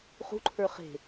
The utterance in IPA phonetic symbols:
χṳǃʰə˞ χe̤

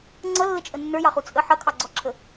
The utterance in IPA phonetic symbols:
ŋ͡ǀʌlːət͡ʃʼə nːə˞jɑχu t͡sʼə ħʌkʰɑɡ͡ǀɔǁʰə

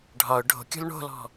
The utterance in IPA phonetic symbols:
ɖʱɒʊ̯ ɖʱo̤kʲo̤l ɳo̤lɔ̤

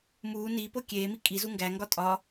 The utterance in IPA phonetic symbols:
muː ni pokʲeːmi kʼizu ŋɡæŋɡɒ tʼɒ

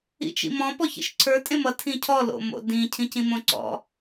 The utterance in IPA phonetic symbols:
ḭt͡ʃḭmɔ̃ pɔçḭʃǀʰə˞ tʼẽmʌ tʰĩcʰɔ lo̰mo̰dĩ cʰĩcĩmõǀɔ̰

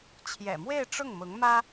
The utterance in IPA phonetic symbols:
t͡ɕʰjɛ̰˨˩mwe˥˧ɪ̯ ʈ͡ʂʊ˥˩ŋmʊ˧˥ŋmä˥

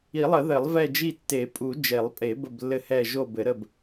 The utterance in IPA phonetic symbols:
i˨˩˦lˠə˨˩˦ ðɘ˨˩˦lˠvɛ˦˨d͡ʒi˦˨ tːe˨˩˦ pʼu˨˩˦ d͡ʒe˨˩˦lˠ pʼe˨˩˦ bə˦˨blːɘ˦˨hɛ˦˨ ʒo˦˨bɘ˨˩˦ɾə˦˨b

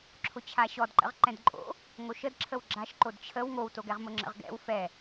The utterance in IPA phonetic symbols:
ǁʰʊt͡ɕʰaɕɔdǃə̰ʁ ǃɛ̃dǃʼo̰ | ŋoʃəd ǁʰəwɡ͡ǁaʃ ǃodt͡ɕʰəw ŋowtoɡɛʁmʊ ŋ͡ǁə̰ʁɡɛ̰w fɛ

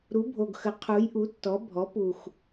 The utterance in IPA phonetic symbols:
ɾu˩˥bʱo˨˩ɡxə˩˥ qʰu˩˥jʔu˩˥tːɔ˩˥ bʱɔ˩˥pu˨˩x

